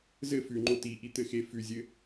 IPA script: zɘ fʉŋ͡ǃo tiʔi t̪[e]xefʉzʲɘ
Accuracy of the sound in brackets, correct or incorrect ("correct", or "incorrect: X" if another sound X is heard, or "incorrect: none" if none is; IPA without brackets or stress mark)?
incorrect: ɘ